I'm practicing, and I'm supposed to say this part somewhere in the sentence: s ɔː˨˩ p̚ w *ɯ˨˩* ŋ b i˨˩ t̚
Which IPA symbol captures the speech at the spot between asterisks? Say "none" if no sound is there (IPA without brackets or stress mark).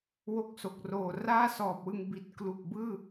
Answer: ɯ˧